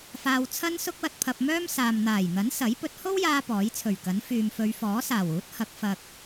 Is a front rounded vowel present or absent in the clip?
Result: present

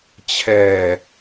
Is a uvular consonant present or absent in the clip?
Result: absent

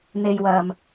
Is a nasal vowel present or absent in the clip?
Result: absent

